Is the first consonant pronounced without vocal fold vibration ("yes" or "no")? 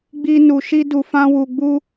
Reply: no